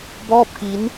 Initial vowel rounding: rounded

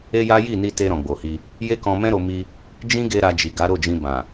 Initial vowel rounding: unrounded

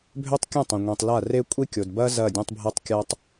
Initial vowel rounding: rounded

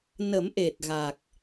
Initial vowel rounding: unrounded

